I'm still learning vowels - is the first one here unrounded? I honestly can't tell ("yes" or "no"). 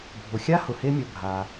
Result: no